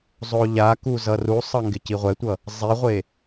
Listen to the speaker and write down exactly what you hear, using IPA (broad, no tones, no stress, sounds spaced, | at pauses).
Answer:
zˤ o ʎ a k u z ʌ r u sˤ ʌ ŋ ɡ ɪ c i ʁʷ ɛ tʷ ʌ | zˤ i ʁʷ e